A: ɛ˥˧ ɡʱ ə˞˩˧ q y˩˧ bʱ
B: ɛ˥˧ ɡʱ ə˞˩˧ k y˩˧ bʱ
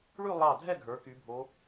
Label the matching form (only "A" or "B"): B